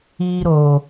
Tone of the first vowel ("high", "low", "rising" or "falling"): high